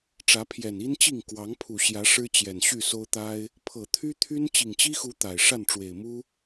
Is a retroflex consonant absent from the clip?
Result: no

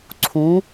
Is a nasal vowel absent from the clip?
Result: no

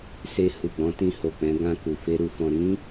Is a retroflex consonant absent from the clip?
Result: yes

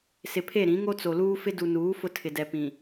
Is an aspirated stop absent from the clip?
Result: no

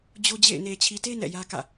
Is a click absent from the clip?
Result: yes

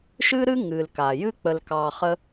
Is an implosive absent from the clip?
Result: yes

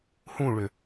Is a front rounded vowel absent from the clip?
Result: no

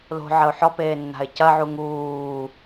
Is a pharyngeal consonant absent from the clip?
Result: no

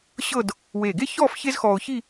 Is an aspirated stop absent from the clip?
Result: yes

